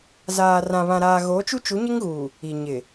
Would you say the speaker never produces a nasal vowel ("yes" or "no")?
no